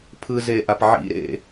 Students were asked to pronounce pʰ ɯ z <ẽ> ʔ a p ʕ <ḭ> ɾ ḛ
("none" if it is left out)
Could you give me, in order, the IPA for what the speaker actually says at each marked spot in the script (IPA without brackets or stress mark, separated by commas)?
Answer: e, ḭ